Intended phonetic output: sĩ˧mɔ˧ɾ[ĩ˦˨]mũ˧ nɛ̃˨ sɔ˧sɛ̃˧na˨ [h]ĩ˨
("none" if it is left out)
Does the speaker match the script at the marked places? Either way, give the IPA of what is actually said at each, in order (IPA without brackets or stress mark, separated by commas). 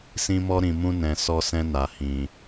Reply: ĩ˨, h